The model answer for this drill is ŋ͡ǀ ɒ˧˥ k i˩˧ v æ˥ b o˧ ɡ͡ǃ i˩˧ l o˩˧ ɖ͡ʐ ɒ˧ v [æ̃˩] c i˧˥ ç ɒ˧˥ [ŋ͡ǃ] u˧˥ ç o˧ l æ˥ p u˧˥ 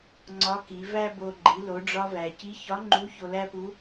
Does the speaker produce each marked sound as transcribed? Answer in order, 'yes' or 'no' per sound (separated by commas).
no, yes